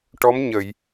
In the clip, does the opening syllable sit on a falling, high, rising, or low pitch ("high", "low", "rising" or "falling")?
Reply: rising